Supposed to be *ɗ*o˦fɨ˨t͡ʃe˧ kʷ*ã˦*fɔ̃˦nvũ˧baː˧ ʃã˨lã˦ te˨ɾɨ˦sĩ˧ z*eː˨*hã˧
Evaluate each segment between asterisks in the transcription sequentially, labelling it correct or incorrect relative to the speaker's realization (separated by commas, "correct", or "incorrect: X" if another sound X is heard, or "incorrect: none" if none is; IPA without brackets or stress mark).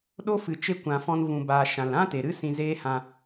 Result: correct, incorrect: ã˧, incorrect: eː˦